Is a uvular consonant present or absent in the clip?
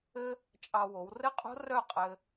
present